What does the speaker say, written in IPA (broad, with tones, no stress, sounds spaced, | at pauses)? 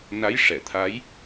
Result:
n a˧˥ j ʂ ɛ˨˩˨ t̪ʰ a˧˥ j